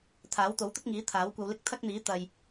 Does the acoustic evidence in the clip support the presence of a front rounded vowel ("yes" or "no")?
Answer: no